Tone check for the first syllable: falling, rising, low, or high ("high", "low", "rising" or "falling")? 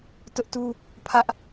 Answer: high